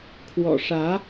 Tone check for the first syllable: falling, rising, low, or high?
low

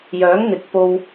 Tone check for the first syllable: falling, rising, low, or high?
rising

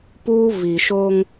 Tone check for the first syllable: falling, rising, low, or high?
high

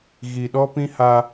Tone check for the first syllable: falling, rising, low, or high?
low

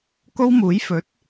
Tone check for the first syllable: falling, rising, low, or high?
high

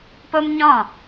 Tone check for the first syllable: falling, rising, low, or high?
high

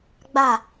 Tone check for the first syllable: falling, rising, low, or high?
falling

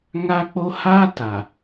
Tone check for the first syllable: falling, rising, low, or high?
high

